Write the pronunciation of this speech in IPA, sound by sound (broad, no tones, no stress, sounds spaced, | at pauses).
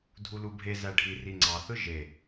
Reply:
dʱ u l u bʱ e z æ ɖʱ i r i ŋ͡ǀ ɑ θ ɯ ʒ e